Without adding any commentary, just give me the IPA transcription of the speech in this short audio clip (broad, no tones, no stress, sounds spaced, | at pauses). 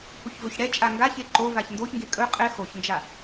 h u ç v ɵ ç ɽ ɛ t͡ʃʼ a ŋ ɡ a ç e ǃ o v a ç n d o ç ŋ ɡ e kʼ ɵ qʼ ɛ x o ç n d͡ʒ a